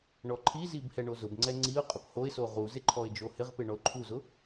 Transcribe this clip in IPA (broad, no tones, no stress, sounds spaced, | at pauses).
ɳ ɔ ǃʰ i z i b h ɛ ɳ o z ʊ b ŋ͡ǀ ɛ ŋ͡ǀ i ʊ̯ qʼ ʊ p h o ɪ̯ s o ʁ u z e ǃʰ ɔ ɪ̯ d͡ʒ o h ɪ ʁ p ɪ ɳ ɔ ʊ̯ ǃʰ u z ʊ